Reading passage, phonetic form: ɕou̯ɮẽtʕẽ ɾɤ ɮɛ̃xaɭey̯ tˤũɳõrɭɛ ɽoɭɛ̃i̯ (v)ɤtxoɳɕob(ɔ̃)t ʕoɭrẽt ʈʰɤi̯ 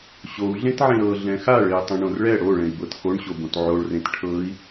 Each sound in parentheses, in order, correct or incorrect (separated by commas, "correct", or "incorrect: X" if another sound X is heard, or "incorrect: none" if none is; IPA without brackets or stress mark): incorrect: b, incorrect: õ